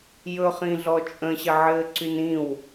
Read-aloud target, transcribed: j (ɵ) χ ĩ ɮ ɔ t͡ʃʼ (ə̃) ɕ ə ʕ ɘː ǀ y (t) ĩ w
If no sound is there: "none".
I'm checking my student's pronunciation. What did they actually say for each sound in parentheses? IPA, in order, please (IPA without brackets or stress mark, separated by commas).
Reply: ɵ, ə̃, n